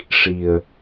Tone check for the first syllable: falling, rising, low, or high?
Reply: low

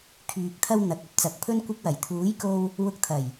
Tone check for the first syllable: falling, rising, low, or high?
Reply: low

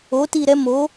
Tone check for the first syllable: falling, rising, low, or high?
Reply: rising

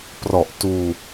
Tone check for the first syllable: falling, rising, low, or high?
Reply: low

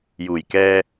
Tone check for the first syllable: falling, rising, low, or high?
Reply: low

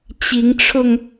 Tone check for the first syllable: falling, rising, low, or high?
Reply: rising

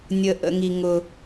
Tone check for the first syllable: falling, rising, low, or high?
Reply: low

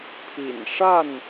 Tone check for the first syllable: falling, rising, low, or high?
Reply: low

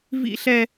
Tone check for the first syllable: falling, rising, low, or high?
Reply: high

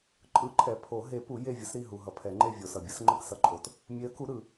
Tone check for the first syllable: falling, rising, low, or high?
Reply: rising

